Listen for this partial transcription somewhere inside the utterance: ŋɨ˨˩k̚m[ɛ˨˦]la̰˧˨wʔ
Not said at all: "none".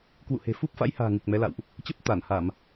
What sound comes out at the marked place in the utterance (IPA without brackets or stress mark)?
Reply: ɛ˨˦